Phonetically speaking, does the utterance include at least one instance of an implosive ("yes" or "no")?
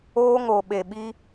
yes